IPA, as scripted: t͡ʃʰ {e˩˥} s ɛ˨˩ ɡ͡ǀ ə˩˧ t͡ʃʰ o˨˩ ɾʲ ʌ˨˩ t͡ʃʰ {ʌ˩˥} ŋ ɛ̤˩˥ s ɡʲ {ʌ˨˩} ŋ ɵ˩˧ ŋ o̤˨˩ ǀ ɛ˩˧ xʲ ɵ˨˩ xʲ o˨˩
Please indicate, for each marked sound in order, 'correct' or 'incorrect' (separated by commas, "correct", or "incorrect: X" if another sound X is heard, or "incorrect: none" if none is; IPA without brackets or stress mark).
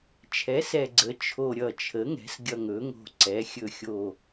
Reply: incorrect: ɛ˩˥, incorrect: ə˩˥, correct